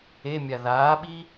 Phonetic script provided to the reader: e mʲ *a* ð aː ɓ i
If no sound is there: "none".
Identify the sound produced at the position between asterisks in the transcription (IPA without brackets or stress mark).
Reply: a